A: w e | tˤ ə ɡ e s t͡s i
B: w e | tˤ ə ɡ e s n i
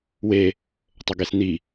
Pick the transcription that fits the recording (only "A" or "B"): B